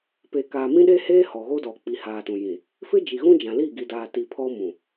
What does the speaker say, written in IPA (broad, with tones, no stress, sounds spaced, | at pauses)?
p e˨ k aː˨ m ĩ˦ ɗ e˦ h eː˦ h ɔ˨ ɣ o˦ d ɔ˨ k͡p i˨ h aː˨ t ũ˨ j ĩ˨ | f ɪ˦ d͡ʒ i˨ ɣ ũ˦ d͡ʒ ã˨ l i˦˨ ɡ i˨ d aː˨ t i˨ pʰ ɔ˦ m ũ˨